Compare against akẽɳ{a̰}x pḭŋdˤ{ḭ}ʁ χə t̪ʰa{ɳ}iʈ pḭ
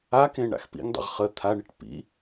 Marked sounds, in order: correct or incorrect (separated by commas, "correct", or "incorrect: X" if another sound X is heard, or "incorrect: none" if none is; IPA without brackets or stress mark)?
correct, incorrect: ḛ, correct